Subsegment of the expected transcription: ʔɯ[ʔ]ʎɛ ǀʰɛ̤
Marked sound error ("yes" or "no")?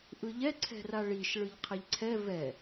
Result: yes